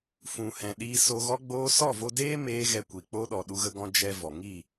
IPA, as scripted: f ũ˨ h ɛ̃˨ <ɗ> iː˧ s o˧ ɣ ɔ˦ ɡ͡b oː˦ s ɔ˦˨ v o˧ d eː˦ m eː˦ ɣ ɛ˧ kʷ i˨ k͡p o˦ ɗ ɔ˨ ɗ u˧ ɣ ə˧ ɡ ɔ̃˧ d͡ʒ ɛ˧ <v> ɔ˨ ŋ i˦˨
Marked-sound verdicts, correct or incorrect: correct, correct

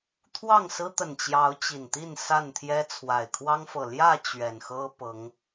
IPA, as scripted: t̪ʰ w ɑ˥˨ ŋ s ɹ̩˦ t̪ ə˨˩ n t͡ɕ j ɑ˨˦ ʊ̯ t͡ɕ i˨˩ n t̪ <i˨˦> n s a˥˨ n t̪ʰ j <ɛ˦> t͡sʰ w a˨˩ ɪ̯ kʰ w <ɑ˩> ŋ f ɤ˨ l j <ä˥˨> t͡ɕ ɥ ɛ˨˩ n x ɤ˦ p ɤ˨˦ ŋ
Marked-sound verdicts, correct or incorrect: incorrect, correct, incorrect, correct

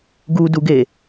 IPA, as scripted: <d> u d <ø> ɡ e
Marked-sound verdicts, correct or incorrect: incorrect, incorrect

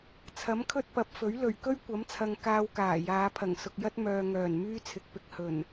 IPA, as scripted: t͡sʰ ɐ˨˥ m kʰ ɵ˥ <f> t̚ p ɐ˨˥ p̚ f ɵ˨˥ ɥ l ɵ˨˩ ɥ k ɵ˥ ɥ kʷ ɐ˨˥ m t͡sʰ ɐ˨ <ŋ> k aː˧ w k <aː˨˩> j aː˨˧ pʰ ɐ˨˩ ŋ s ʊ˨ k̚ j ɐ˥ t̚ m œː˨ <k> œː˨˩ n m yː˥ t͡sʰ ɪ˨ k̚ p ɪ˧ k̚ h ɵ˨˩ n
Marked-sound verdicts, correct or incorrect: incorrect, correct, correct, incorrect

